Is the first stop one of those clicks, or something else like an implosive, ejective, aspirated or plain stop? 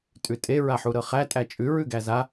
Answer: ejective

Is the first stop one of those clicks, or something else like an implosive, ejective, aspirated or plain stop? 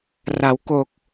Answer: plain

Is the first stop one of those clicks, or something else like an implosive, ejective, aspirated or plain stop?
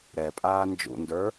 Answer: ejective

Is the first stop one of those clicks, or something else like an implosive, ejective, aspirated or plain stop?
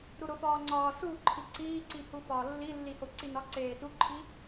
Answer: click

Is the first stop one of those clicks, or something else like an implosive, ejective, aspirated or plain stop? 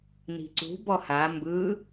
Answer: click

